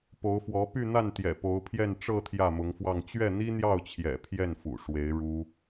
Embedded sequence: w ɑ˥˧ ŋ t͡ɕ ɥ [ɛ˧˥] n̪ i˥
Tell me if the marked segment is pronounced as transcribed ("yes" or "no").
no